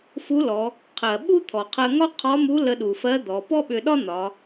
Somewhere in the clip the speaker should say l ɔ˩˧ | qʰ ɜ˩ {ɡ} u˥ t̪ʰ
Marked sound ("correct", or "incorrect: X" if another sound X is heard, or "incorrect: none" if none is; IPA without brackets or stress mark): incorrect: ɓ